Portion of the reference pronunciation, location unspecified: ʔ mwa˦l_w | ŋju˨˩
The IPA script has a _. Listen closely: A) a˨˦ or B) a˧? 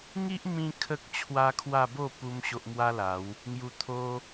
A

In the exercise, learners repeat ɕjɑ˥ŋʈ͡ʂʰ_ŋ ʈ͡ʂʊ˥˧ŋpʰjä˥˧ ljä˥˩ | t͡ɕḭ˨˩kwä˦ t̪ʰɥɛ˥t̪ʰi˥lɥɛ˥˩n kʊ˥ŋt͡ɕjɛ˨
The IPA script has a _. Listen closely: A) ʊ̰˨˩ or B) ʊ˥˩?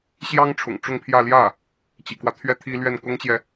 A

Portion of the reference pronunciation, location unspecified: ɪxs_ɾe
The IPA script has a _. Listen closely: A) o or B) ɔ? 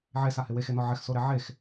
A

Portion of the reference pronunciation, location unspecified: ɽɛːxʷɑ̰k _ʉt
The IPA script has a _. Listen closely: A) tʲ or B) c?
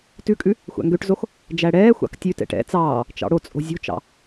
A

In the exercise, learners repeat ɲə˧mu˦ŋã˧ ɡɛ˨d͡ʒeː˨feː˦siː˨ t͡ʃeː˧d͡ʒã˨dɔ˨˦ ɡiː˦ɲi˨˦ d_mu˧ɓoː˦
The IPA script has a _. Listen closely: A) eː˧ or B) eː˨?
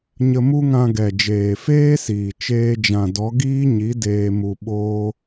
A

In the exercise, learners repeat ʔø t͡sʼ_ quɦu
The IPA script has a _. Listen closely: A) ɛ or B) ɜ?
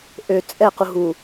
A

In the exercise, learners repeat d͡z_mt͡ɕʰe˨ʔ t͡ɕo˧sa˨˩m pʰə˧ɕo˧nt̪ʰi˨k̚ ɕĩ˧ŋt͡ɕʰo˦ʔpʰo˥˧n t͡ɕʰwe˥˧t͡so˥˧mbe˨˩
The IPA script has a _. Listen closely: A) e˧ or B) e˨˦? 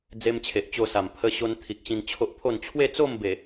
A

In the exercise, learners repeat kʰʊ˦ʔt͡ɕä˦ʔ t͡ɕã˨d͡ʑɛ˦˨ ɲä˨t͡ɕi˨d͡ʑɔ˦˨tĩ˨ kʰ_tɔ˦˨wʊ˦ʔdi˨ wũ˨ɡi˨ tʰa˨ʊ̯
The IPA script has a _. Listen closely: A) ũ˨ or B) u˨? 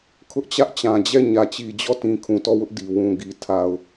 A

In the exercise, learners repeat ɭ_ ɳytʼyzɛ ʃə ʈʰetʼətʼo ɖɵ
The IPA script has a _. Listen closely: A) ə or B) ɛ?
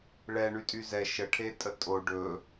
B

